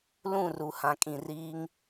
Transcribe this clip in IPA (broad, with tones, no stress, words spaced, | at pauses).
lũ˦˨ru˨ hã˨kʼĩ˨riː˦ŋ